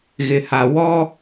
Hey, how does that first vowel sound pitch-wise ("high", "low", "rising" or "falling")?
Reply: low